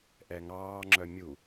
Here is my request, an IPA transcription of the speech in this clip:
ʔ ɛ ŋ ɑː ŋ͡ǁ œ mʲ u

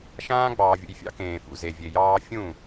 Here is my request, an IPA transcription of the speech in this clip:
ʃ ãː˦ ɡ͡b ɑː˨ vʲ ṵ˨ j fʲ ɑ̰˦ k ẽː˨ f ṵ˨ z e˨ vʲ e˨ j ɑː˦ fʲ ũ˦˨

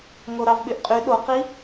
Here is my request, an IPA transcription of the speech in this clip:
ŋ o ɾ ɑ v ɓ y ʔ qʼ y ɗ o q i

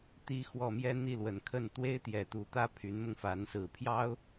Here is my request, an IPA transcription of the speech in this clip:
t̪ i˧˥ x w ɔ˨˩ m j ɛ˥ n̪ i˥˩ l w ə˨˩ n kʰ ə˥˩ n t̪ w e˥ ɪ̯ t̪ j ɛ˨˩ t̪ u˧˥ t̪ ä˥ pʰ y˧˥ n m ʊ˧ ŋ f a˧˥ n s ɹ̩˨˩ pʰ j ɑ˥ ʊ̯

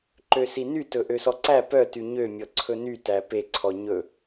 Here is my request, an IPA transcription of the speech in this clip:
ǃ ø s i n y t ɵ ʔ ø s ɔ ǀ æ p œ t y ɲ ø mʲ ɔ ǀʰ ɵ n y t æ p e ǀʰ ɔ ɲ ɵ

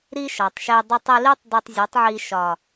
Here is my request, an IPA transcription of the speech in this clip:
ɾ i˦ ʃ ɒ˨ tˤ ʃ e˧ dˤ ə˧ tˤ i˧ l i˦ tˤ d ə˧ tˤ zʲ u˨˦ tˤ ʕ i˧ ʃ ɒ˨

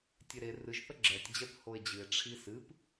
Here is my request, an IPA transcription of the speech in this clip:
tʲ e ɾ e r ɨ ʒ θ ə ɡ͡ǁ ɛ tʲ d͡ʑ ɛ p h o e̯ d͡ʑ ɨ e̯ ʈ͡ʂʰ i s ɨ p

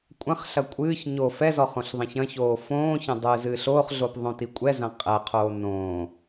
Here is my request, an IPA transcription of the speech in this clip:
kʷʼ ɐ̃ χ ɬ ɐ kʷʼ ɨː ç ɲ o f ɛ z ɔ χ õ ɬ ðˤ ɛ̃ ç ɐ̃ ç oː f õː ç ɐ̃ dˤ ɨː z ɨː ɬ oː χ ɮ o p ðˤ õ t i kʷʼ ɛ z ɐ̃ qʼ ɛ qʰ oː n õː

